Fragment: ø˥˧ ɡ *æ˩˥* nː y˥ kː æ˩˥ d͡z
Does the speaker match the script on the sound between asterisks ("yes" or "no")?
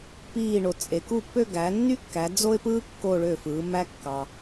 yes